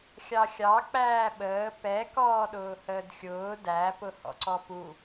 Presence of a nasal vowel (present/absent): absent